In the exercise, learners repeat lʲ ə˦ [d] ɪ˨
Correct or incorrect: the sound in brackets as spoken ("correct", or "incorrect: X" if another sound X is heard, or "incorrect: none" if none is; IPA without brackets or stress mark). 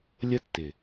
incorrect: tː